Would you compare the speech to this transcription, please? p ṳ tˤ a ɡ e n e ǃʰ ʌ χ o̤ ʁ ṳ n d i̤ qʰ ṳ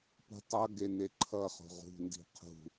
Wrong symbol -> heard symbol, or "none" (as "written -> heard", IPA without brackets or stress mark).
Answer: a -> ʌ